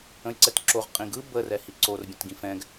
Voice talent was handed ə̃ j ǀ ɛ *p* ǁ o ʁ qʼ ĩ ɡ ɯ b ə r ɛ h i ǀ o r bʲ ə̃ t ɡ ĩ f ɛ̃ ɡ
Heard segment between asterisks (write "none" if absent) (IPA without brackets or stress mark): t